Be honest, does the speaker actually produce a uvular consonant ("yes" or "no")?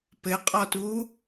yes